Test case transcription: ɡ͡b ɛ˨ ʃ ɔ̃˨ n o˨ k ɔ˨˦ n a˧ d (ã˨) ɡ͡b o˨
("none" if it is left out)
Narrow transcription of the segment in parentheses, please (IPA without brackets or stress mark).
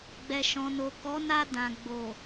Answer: ã˨